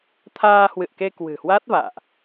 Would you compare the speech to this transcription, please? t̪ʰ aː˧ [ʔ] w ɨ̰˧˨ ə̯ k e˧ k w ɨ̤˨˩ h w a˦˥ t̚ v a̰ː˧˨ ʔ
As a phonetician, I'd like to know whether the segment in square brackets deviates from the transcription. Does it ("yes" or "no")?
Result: yes